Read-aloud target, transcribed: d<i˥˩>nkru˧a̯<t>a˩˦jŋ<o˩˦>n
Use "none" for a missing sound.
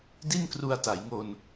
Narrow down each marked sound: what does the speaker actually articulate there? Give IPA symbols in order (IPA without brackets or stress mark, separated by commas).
i˥˩, t, o˧